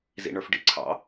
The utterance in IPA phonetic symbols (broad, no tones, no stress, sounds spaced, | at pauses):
z ḭ ɳ ə˞ f ɖ ḭ ǀʰ ɑ̰